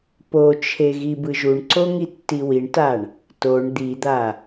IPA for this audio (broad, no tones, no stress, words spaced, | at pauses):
pot͡ʃʰe ɣibɯʒuɳǀo ŋitːiwiɳtaɳ | toɳ d̪id̪a